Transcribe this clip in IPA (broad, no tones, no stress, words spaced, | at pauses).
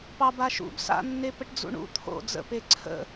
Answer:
pɑbaʃṵb sa̰nːepəʈ d͡zṵɳṵ t̪ʰo̰ d͡zə̰pe ǀʰə̰